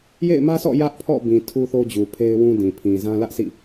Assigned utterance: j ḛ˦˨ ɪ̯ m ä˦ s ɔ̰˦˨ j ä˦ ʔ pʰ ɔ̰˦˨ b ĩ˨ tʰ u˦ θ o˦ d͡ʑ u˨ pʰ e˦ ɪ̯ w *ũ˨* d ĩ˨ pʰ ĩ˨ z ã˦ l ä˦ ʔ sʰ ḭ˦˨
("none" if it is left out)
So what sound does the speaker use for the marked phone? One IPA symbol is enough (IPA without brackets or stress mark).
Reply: ũ˦